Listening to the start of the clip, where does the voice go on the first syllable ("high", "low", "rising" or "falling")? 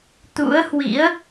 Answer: rising